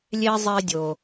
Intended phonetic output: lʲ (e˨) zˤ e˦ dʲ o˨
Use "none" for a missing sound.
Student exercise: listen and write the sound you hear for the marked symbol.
e˦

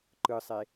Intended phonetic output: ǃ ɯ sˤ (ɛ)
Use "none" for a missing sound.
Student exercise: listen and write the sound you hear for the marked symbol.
e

